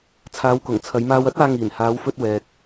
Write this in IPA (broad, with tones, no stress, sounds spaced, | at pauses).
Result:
t͡sʰ aː˨˧ w k ʊ˨˩ ŋ t͡sʰ ɐ˨˧ j m aː˧ w ɐ˥ t̚ aː˧ ŋ iː˨˩ n h aː˨˧ w f ɵ˧ t̚ w ɛː˨ k̚